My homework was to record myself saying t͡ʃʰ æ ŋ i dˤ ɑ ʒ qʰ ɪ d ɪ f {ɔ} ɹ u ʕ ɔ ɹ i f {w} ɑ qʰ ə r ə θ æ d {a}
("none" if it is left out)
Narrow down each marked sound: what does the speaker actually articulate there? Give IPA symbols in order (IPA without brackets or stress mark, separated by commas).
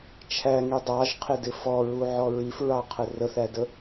ɔ, ɹ, ə